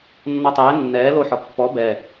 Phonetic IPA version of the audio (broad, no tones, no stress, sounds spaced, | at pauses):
nː ɔ tˤ ɛː nː ɛː l o ħ ɒ pː ɔ b ɛ